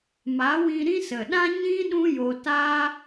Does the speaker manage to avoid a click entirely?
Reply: yes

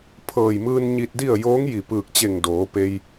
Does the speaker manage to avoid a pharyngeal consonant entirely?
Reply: yes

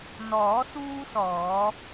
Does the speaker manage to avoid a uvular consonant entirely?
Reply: yes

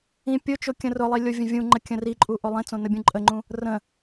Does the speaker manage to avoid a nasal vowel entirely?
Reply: no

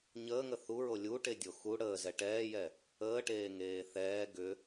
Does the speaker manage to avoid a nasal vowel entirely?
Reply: yes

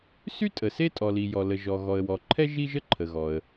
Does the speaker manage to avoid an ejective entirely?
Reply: no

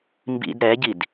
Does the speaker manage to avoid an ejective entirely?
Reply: yes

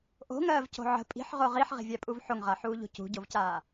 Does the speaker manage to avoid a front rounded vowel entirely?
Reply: yes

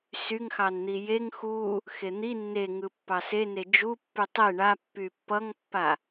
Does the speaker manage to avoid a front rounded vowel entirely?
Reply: no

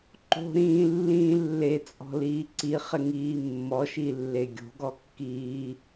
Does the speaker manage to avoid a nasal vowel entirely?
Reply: no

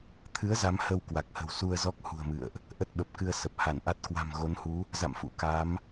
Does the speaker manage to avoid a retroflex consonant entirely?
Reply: yes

